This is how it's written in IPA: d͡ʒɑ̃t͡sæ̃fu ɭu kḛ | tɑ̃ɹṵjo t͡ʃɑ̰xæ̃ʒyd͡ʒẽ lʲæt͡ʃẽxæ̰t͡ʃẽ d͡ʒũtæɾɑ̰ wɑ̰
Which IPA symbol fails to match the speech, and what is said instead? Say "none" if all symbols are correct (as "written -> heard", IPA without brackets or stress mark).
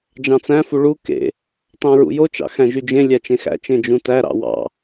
none